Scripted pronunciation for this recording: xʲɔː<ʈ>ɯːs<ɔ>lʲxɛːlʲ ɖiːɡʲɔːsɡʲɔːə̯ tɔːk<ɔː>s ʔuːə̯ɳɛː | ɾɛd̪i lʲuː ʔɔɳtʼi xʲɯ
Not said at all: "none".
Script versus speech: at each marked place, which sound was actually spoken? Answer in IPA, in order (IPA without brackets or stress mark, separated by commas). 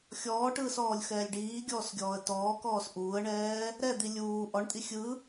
ʈ, ɔː, ɔː